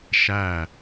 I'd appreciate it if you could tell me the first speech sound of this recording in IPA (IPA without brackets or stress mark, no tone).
ʃ